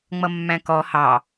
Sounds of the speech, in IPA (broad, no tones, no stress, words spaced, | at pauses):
ŋ͡mʌmːæ̃kɔ hɑ